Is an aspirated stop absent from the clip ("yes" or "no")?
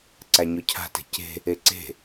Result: no